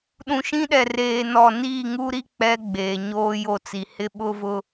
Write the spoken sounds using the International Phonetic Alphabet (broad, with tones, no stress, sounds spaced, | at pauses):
ɗ ũ˨ ʃ ĩ˦ ɗ ɛ˨ r eː˨ n ɔ˦˨ n iː˦˨ ŋ u˦ ɾ i˦ k͡p ɛ˦ ɡ͡b eː˨ ɲ oː˦ j o˦˨ t͡s i˨ h ɪ˦ ɓ ʊ˦ v ʊ˦